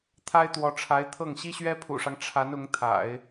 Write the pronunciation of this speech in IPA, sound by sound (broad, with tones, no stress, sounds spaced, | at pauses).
t̪ʰ a˥ ɪ̯ t̪ w ɔ˧˥ ʈ͡ʂʰ a˧˥ ɪ̯ t̪ʰ ɤ˥˩ ŋ ɕ i˥ ɕ ɥ ɛ˥ pʰ ṵ˨˩ ʂ ɑ˦ ŋ ʈ͡ʂʰ a˧˥ n ʊ˧˥ ŋ t̪ʰ a̰˨˩˦ ɪ̯